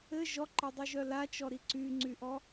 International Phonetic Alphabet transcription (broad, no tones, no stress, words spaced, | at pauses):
ɘ ʒɔǃɘdˤyʒœ lat͡ʃɔɾi ǀyŋ͡ǀyʔɔ